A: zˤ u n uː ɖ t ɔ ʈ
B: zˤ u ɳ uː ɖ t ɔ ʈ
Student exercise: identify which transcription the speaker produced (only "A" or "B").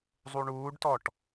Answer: B